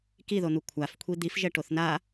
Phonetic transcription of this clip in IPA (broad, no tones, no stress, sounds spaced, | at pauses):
k i ð o n̪ u kʷʰ a f kʷʰ i d̪ i f ʒ ɛ ʈ o θ n a